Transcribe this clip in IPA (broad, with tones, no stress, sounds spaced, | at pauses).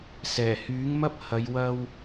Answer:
s ɛː˨˩ h yː˨˥ ŋ m ɐ˥ p̚ h ɐ˨˧ j w ɐ˧ w